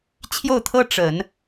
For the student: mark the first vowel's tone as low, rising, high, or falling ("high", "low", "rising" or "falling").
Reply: falling